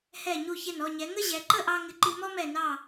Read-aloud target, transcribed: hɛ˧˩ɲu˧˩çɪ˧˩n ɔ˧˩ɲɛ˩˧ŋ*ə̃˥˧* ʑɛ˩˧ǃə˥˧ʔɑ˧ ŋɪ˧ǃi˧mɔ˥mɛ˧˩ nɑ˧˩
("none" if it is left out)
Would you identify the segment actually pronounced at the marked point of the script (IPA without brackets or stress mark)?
ə˥˧